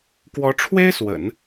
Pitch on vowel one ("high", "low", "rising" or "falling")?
rising